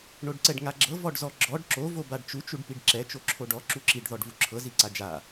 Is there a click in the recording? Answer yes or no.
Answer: yes